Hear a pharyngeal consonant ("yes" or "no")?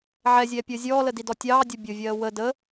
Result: yes